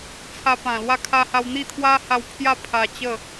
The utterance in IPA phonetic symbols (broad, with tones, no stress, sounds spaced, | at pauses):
t͡sʰ a˧ p ã˨˩ l w a˥˧ kʰ a˧ h a˧ w n̪ i˥˧ t̪ʰ w a˦ h a˧ w pʰ j a˥˧ pʰ a˧ t͡ɕ ə˥˧